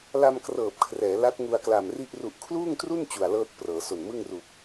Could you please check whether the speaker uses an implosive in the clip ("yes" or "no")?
no